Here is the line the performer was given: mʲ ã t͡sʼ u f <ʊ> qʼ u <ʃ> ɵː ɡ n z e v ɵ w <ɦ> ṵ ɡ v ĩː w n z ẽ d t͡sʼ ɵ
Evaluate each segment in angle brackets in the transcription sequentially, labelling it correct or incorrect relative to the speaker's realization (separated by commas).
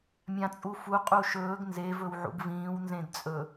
incorrect, correct, incorrect